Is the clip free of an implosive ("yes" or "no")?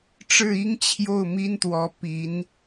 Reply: yes